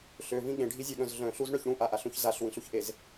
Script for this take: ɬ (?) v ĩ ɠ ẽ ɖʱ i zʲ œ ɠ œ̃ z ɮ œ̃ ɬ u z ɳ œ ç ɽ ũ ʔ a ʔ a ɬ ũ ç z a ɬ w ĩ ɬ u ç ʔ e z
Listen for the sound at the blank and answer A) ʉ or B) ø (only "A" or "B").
B